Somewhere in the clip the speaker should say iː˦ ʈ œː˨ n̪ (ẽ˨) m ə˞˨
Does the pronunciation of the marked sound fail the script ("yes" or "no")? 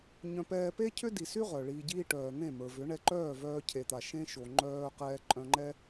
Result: yes